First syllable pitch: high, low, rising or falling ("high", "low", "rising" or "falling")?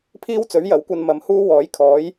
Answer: high